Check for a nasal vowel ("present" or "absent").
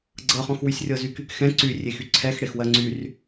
present